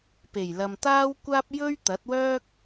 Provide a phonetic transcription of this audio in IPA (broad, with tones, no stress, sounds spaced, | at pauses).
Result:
p e˨˩ j l ɐ˨ m t̪ aː˥ w kʷ aː˥ p̚ j ɵ˥ ɥ t̪ ɐ˨˥ t̚ w œː˥ k̚